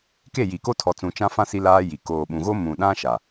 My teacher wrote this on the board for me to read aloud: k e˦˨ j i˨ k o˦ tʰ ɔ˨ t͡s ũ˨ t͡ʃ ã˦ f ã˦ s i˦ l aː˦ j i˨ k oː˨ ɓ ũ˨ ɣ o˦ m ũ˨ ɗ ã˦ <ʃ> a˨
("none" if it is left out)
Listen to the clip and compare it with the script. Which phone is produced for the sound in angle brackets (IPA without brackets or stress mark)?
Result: ʃ